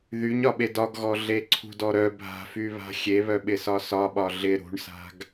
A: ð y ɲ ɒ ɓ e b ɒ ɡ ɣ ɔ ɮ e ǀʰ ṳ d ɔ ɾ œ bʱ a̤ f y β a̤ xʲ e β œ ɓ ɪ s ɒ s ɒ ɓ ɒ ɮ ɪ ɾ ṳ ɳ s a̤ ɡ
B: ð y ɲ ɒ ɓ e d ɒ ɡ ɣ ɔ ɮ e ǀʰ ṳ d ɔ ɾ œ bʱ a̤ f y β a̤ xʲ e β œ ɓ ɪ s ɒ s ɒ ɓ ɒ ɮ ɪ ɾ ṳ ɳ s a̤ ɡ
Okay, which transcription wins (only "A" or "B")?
B